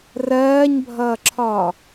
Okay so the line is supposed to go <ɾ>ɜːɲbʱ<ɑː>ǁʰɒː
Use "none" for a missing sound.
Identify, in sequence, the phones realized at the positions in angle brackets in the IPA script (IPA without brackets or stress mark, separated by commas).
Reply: r, ʌː